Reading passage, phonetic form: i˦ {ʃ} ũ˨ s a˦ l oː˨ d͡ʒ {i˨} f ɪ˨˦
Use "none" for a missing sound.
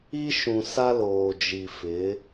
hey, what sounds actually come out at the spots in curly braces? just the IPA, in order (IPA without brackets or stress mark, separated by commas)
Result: ʃ, i˨